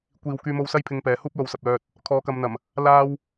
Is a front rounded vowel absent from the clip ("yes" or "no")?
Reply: no